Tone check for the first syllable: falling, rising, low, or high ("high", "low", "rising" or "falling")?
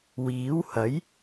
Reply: rising